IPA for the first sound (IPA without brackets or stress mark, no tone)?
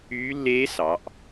yː